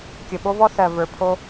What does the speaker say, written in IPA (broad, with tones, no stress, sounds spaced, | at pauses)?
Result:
kʲ ə˨ ɓ o˦ v ɔ˦ θ ɜ˨ v ə˞˨ pʰ o˦